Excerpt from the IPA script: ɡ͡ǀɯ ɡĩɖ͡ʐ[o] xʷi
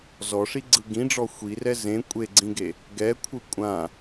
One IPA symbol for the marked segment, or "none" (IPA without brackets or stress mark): ɔ